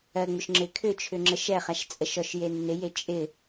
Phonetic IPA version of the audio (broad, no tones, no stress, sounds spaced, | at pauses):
ɜ ŋ͡m ʏ ʃ ŋ͡ǁ ɪ kʰ ʏ t͡ʃʰ ʏ ŋ͡ǁ ə ʃ ɛ χ a ʃ t͡sʼ ə ʃ ɔ ʃ j e nː ɪ j e t͡ʃʼ ɪ